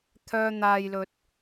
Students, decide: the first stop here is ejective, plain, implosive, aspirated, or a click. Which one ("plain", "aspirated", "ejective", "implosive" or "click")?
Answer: aspirated